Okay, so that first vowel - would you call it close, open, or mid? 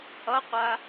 mid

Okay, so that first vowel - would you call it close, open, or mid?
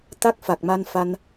open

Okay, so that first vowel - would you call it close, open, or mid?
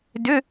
close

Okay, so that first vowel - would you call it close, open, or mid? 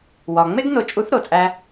open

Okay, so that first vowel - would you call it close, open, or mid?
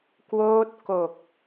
mid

